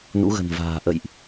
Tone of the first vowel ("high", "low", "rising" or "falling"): rising